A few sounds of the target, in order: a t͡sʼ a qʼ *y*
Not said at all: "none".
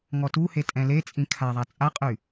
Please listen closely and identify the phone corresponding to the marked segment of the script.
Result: y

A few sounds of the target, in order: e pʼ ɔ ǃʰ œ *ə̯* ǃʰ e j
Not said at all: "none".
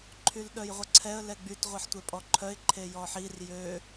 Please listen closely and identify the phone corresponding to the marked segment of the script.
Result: ɪ̯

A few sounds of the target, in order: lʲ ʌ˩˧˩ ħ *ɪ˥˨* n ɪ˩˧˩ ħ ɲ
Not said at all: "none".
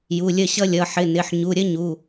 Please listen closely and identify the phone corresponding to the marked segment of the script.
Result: ɪ˩˧˩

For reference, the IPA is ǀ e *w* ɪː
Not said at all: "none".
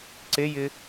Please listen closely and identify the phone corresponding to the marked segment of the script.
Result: j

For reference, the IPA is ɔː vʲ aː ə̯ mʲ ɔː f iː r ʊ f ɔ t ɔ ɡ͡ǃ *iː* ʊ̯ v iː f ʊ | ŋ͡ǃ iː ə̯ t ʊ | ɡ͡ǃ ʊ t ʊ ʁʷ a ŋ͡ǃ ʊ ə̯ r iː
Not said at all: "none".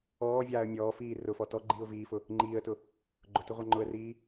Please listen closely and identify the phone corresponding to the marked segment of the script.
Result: iː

